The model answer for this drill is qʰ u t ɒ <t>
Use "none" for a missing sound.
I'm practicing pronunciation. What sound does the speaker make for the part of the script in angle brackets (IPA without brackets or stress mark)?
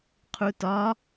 none